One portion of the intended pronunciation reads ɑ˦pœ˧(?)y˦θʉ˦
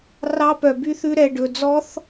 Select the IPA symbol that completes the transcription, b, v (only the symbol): b